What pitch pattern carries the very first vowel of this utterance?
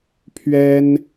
high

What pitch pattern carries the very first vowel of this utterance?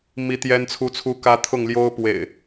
high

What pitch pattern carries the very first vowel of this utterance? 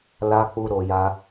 high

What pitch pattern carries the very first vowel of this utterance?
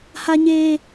low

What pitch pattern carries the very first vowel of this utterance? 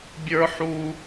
high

